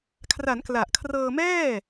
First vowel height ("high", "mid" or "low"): low